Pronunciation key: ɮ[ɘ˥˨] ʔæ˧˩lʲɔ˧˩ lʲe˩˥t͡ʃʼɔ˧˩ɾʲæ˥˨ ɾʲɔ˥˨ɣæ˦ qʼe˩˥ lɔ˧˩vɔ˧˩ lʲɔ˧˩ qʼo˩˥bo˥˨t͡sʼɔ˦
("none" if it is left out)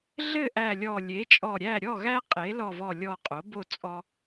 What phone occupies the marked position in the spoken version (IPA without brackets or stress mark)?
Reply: ɘ˥˨